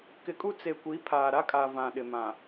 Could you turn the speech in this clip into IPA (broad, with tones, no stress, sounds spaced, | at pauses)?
k ɪ˨ kʼ u˦ t͡s e˨ kʷ i˨˦ pʰ aː˨ ɾ a˦ kʼ a˨ v ã˨ ɗ ɪ˨ m ã˨